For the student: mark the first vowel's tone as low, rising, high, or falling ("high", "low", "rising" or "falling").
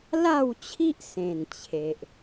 falling